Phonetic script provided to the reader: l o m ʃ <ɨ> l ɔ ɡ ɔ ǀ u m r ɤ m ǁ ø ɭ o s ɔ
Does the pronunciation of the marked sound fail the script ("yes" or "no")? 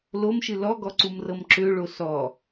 no